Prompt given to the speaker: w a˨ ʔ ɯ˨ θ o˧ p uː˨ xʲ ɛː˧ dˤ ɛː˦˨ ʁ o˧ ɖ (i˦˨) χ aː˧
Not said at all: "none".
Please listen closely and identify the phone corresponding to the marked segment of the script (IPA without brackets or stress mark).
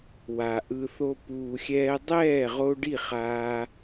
i˦˨